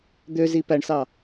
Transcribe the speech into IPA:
d̪ ø z i p æ ɳ s ɑ

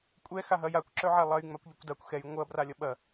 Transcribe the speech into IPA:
kʷʼ ɛ x a ɦ ɐ j a kʷ ǁ œ ʕ a lˠ ɐ j ŋ͡m a kʷ ʎ œ kʷ d a kʷ x ɛ j ŋʷ ɐ b r a lʲ ɐ ɓ ɐ

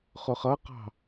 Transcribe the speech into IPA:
χ ʊ χ ʌ q ɑ̤

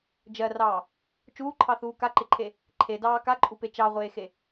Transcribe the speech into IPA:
d͡ʒ ɜ r ɑː | t͡ʃ uː ǃʰ ɑ θ uː k a ǃ ɪ ǃʰ e | ǃʰ e d ɑː k a ǃʼ u p e t͡ʃ ɑ ʁʷ eː x e

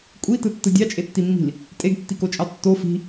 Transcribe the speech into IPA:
kʷʼ i t ɯ tː ɯ dʲ ɑ t͡ʃʼ e tː i mː i̤ l | tʼ e ɡ tː i k o t͡ʃʼ ɑ tː o f i̤

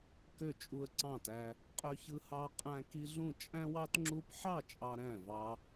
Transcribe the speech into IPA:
k ø˥˨ t͡ʃʼ u˦ ə̯ ǀ ɑ̃˥˨ t æ˦ | qʼ ø˦ ç ɯ˦ h ɑ˦ qʼ æ̃˦ k i˦ ɮ ũ˥˨ t͡ʃʼ æ̃˦ w ɑ˦ t ŋ͡ǁ u˦ p ħ ɑ˥˨ t͡ʃʼ ɑ˦ ɾ æ̃˥˨ v ɑ˦

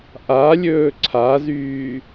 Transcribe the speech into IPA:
ʔ a lʲ ɵː ǀʰ a z yː

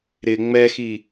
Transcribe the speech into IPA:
ɾ ɪ ŋ͡m ɛ x i

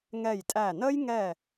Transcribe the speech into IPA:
ŋ ɛ˧˩ j tʼ æ˧˩ n ə˥ j ŋ ɛ˧˩

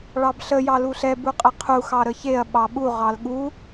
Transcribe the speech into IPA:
ɭ ɑ b ɬ ə j ɑ l u ɬ ɛ b u qʼ ə qʰ u x ɑ ɾ ə ç e ɐ̯ ɓ ɑ ɓ u ʁ ɑ l ɠ u

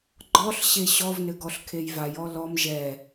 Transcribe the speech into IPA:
ɡ͡ǃ ɔ ɬ ɕ e ɕ ɔ v n ɘ ɡ ɔ ɬ kʰ e j v a j ɔ l ɔ m ʒ ɛ

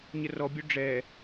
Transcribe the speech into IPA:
ɲ ə r ɔ bʲ ø ɖ͡ʐ ɛ

